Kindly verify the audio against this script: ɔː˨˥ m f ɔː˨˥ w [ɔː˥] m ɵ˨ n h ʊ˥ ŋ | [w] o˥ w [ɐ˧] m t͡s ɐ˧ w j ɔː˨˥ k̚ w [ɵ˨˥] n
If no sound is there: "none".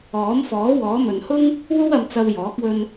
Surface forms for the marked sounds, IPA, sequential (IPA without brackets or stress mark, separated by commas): ɔː˨˥, w, ɐ˧, ɵ˧